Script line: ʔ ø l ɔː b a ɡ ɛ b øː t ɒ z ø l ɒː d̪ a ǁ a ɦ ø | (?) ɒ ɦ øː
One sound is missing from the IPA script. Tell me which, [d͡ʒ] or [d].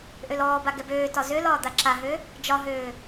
d͡ʒ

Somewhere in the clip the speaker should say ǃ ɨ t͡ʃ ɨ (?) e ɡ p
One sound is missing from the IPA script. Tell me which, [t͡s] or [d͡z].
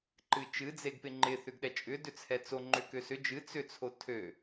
d͡z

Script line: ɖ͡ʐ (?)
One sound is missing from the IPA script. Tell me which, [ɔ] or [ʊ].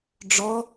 ɔ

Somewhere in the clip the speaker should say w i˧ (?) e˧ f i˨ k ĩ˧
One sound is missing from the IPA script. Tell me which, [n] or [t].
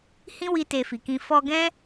t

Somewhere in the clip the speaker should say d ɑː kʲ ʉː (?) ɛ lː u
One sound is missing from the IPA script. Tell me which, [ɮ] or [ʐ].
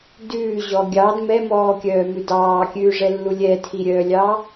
ʐ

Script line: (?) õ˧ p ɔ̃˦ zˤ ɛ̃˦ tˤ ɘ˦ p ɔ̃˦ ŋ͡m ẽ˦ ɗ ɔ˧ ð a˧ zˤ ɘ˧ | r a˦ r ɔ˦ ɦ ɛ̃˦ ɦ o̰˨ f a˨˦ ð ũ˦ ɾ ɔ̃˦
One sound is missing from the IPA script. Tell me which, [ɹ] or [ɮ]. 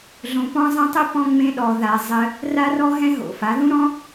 ɮ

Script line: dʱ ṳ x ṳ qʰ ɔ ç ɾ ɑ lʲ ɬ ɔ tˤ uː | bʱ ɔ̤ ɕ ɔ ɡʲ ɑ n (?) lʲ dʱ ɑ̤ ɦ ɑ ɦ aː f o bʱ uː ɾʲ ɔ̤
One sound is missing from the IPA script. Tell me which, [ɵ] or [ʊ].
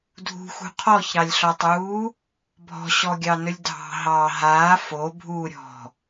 ɵ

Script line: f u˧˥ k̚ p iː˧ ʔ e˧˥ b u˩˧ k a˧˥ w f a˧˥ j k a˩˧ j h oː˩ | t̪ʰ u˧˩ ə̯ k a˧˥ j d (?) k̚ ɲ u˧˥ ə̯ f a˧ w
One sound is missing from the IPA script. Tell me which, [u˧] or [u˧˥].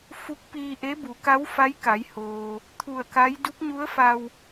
u˧˥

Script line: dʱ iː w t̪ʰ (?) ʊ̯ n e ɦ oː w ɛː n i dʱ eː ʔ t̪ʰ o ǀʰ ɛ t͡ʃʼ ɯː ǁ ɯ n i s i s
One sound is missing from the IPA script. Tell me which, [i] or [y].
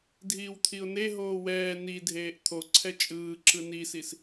i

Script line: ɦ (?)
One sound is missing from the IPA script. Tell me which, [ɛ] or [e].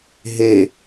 e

